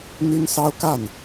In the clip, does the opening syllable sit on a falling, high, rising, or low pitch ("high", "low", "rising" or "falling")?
high